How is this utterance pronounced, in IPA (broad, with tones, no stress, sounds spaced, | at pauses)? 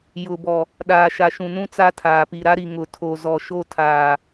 j ʊ˨ b ɔ˨ | ɗ aː˨ ʃ a˨ ʃ ũ˨ n ũ˦ t͡s a˦ tʰ aː˨ p i˨ ɾ a˦ ɾ i˨ ŋ ʊ˨ tʰ o˨ z ɔ˨ ʃ o˦ tʰ aː˨